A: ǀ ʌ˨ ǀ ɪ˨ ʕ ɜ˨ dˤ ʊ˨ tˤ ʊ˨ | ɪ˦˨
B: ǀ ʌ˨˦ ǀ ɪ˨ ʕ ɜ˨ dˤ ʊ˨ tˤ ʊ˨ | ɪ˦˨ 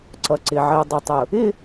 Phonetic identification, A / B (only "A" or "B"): A